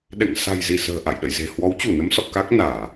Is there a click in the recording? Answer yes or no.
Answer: no